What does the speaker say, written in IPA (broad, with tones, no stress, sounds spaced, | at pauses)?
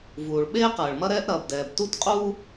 v uː˩ ɭ ɓ eː˥ q ɐː˩ ɭ m ɐ˥ ɾ ɛː˥ ʔ ɾ ɐː˩ b d ɛː˩ b t u˥ t qʼ u˥